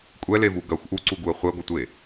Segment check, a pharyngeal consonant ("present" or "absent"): absent